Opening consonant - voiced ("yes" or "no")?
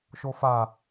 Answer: no